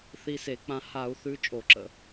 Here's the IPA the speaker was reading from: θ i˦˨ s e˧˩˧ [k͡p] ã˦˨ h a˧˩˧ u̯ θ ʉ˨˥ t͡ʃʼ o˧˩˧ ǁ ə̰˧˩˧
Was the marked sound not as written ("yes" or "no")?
no